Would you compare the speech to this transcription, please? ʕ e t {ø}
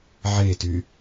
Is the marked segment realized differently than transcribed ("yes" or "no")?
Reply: yes